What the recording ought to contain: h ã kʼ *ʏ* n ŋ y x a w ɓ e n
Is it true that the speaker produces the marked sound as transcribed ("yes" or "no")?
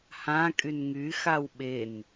no